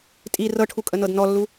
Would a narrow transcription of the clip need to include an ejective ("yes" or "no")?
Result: yes